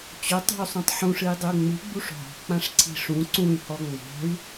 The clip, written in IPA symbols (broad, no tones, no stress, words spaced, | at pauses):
t͡ɕotˤo̤y̯sˤũtˤ ħũʂɨi̯dˤɨu̯ ŋ͡mɨɡ͡buʂ ɦɔ̤k͡pãʂǀʰi̤ ʂũ ǀũy̯hɔ ŋ͡mɔ̤y̯